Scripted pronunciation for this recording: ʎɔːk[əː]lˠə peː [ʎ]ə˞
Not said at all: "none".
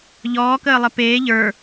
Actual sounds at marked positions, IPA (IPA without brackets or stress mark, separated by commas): əː, ʎ